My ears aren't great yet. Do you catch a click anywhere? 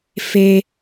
no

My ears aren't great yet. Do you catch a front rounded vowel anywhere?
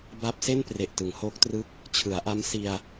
no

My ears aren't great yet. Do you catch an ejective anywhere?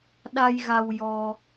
no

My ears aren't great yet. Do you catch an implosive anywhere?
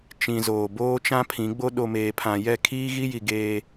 yes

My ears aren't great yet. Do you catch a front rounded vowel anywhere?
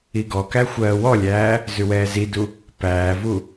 no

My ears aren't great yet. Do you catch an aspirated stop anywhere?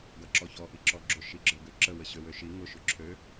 yes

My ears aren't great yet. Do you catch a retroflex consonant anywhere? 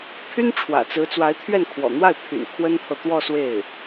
yes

